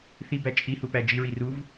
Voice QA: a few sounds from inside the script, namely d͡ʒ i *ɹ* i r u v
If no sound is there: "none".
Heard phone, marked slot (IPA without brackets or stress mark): ɹ